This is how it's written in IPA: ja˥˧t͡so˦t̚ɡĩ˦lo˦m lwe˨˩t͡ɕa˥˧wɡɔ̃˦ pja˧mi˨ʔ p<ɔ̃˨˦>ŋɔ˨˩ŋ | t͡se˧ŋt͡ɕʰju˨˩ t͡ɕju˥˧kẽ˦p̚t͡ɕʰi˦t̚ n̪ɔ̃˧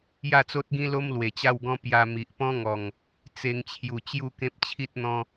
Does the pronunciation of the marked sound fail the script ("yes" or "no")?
yes